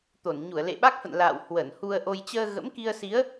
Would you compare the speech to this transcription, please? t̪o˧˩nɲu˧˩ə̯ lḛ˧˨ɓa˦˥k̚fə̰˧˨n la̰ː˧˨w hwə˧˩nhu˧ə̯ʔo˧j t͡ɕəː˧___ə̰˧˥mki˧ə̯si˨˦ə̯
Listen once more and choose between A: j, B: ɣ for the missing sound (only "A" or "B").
B